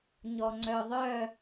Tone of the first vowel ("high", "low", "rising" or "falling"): low